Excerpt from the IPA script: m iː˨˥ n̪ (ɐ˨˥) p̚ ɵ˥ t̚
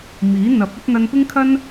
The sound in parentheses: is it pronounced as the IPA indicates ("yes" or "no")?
yes